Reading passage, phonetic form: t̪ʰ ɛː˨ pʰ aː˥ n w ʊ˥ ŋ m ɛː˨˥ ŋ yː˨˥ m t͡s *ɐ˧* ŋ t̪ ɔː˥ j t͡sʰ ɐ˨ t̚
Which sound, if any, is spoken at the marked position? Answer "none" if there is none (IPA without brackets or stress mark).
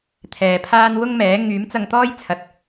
ɐ˧